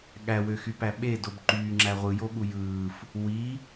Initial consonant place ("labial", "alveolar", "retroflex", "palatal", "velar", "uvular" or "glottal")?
velar